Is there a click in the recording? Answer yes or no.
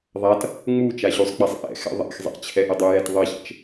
no